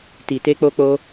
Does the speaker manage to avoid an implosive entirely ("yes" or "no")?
yes